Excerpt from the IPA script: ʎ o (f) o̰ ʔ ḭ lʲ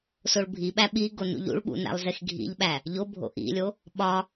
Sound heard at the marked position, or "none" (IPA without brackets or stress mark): bʱ